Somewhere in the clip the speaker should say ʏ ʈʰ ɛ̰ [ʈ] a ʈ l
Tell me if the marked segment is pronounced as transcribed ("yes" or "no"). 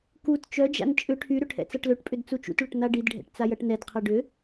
no